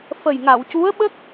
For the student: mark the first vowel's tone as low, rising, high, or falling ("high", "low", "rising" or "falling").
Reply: low